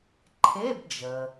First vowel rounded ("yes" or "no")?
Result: no